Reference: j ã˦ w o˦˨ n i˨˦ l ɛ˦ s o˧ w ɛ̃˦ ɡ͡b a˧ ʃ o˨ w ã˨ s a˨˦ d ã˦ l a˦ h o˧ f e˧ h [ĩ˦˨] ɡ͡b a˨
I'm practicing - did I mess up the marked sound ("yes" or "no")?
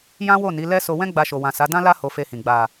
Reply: yes